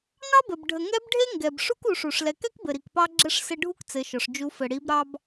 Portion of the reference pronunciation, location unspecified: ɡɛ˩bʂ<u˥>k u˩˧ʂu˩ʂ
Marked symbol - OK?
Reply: yes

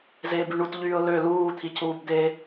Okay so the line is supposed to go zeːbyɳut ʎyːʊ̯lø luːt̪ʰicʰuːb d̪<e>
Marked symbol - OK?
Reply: yes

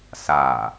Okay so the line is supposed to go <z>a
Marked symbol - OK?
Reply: no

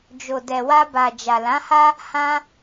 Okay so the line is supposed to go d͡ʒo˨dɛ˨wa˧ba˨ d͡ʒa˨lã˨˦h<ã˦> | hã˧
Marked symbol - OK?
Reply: no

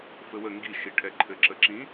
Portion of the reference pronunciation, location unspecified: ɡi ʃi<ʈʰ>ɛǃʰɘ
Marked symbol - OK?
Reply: yes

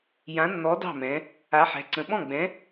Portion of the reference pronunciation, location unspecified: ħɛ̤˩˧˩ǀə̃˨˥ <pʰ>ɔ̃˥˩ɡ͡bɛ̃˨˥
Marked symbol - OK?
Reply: no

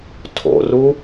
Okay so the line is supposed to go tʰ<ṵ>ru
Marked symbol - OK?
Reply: no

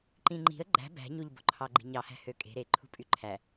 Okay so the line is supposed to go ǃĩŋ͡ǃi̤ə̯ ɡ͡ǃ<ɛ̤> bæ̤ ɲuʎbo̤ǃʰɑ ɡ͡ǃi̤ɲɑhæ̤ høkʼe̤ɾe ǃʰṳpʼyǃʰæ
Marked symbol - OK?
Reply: no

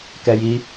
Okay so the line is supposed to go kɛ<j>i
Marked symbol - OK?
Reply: yes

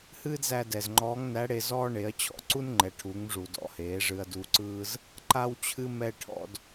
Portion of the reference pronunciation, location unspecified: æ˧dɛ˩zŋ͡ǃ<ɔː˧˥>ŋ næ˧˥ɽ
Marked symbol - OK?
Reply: yes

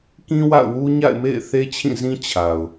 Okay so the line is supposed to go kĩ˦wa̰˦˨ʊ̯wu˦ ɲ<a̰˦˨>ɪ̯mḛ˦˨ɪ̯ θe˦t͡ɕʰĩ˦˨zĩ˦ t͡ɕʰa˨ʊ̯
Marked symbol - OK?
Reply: yes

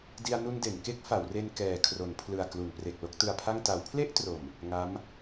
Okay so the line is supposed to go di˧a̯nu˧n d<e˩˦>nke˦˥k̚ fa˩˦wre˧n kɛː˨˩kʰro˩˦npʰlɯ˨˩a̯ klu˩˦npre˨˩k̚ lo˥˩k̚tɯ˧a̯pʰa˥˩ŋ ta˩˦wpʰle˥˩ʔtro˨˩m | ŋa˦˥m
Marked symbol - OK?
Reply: yes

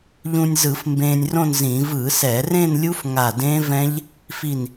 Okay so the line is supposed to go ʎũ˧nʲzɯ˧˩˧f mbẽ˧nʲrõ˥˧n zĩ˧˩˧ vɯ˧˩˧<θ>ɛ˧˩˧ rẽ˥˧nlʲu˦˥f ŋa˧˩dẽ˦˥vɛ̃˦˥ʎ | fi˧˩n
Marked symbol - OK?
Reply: no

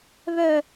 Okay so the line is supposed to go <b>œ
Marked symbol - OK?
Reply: no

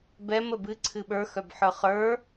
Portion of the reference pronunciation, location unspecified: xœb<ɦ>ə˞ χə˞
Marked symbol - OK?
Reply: no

